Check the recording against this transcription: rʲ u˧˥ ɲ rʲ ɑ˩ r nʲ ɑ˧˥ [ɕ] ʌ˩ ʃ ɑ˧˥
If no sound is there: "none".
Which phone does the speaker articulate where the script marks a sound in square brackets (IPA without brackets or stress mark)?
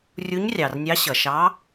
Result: ɕ